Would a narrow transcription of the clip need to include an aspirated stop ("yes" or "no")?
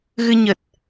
no